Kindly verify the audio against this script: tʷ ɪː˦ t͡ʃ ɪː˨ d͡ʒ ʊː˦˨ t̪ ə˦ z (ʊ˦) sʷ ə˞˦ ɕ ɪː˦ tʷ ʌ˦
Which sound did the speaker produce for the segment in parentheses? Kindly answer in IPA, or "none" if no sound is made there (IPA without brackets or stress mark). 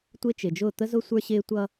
ʊ˦